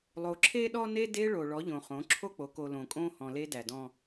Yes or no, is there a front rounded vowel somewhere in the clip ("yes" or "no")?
no